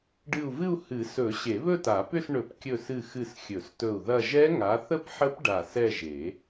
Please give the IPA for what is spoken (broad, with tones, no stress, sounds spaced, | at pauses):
ɖ ɨ˧˩ u̯ v ɨ˥˧ u̯ h ɨ˨˩˦ s ɵ˨˩˦ ɕ e˨˩˦ β ɵ˥˧ t a˨˩˦ p ʏ˥˧ s ɳ ɵ˨˩˦ p kʲ ɵ˧˩ s ɨ˧˩ x ɨ˧˩ s xʲ ɵ˨˩˦ s t ɵ˧˩ u̯ ð ɐ˥˧ ʒ ɛ˦˥ ŋ a˨˦ θ ə˥˧ p ħ ə˦˥ p ɖ a˧˩ s ɛ˥˧ ʒ e˨˩˦